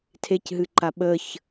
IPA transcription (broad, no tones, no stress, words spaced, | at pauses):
tʰecɦɨǃa ɓəç